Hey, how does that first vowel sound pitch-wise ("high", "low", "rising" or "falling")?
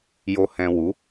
low